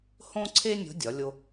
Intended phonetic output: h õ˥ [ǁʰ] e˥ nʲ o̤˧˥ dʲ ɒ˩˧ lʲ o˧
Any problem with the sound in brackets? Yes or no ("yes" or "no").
yes